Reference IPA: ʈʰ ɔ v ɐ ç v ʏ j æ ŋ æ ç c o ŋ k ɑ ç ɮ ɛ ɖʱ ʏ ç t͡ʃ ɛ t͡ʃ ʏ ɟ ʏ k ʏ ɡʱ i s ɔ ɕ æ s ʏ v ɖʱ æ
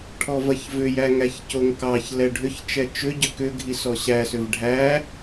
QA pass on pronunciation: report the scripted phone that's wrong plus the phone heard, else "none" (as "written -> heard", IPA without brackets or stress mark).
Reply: ɮ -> l